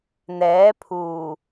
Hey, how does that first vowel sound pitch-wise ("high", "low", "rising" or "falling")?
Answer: rising